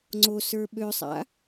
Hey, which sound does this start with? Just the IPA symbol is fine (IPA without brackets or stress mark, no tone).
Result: ŋ͡ǀ